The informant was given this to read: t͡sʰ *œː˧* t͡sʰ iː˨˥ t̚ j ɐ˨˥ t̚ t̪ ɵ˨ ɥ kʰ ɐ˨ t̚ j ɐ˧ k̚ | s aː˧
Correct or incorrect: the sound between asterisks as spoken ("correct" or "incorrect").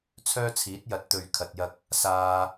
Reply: incorrect